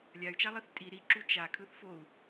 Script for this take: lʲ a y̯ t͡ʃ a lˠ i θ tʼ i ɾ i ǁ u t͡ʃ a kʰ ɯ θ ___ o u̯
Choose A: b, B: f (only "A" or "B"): B